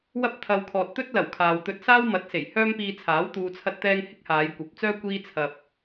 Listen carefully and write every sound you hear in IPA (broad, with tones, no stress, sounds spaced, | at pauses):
w ɐ˥ p̚ t̪ʰ ɐ˧ w kʰ ɔː˨ t̚ t̪ ɵ˥ t̚ l ɐ˨˩ w kʰ aː˨ w t̪ ɵ˧ t̚ s aː˥ w m ɐ˨˥ t̚ s e˨˩ j h œː˥ m p iː˧ t͡sʰ aː˨˥ w t̪ uː˨ t͡sʰ ɐ˧ t̚ t̪ ɛː˧ ŋ h ɪ˥ k̚ h aː˨˧ j kʷ ɐ˨˥ p̚ t͡s œː˥ kʷ iː˥ t͡sʰ ɐ˧ p̚